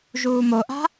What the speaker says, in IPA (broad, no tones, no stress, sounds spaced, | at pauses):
ʒ uː m o ʔ a̤